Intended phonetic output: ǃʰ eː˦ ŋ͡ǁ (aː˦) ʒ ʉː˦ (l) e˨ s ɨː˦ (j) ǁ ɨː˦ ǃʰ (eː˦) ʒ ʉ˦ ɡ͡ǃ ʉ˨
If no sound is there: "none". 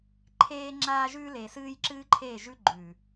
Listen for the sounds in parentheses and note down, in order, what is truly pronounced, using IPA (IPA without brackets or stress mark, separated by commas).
aː˦, l, j, eː˦˨